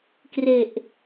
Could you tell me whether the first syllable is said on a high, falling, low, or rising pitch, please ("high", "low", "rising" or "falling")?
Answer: low